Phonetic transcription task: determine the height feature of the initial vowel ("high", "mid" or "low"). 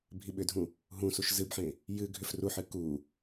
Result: high